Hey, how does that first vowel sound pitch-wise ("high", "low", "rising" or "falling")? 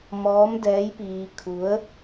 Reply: rising